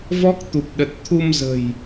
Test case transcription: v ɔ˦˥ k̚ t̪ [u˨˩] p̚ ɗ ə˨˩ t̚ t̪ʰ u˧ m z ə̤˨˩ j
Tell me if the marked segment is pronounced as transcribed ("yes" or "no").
yes